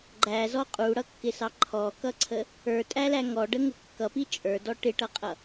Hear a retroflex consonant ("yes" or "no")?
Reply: yes